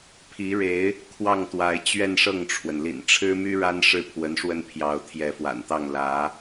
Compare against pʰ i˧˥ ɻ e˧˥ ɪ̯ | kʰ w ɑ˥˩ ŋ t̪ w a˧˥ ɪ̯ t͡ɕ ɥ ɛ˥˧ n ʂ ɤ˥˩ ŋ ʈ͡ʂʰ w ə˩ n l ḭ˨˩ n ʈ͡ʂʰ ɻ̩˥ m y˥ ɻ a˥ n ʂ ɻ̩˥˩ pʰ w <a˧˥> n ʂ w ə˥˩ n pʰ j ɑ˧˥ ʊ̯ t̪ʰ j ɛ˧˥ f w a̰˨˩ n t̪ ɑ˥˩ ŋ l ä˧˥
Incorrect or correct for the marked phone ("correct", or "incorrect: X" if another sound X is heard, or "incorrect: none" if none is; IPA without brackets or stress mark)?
incorrect: ə˧˥